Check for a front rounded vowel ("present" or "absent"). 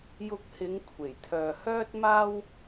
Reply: present